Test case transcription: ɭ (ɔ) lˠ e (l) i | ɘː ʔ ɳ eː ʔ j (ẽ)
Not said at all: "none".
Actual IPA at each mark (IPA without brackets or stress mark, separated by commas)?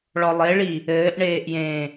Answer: ɔ, ɭ, ẽ